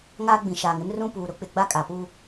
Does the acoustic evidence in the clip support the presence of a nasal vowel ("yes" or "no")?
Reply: yes